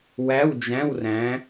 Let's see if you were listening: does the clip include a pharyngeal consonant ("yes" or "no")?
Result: no